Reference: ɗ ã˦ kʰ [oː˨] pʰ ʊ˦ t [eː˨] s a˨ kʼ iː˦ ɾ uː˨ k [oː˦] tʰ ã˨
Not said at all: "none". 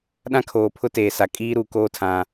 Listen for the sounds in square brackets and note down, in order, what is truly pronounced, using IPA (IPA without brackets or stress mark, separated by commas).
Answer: oː˨, eː˨, oː˦